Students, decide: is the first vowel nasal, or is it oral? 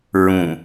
nasal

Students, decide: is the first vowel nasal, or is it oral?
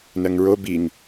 oral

